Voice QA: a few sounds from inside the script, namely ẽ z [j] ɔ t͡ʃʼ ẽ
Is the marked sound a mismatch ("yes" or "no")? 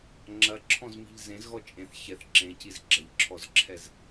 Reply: yes